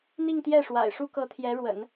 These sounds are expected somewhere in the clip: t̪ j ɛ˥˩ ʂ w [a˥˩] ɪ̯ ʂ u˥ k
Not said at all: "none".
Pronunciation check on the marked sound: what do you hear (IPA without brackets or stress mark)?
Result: a̰˨˩